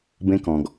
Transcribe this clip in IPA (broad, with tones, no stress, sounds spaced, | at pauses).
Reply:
b ẽ˦ k ɔ̃˨ ɡ